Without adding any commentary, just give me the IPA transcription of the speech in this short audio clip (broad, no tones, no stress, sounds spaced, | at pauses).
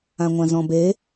ã ŋʷ ã z ɔ̃ b e